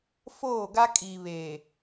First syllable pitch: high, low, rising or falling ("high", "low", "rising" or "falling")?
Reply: falling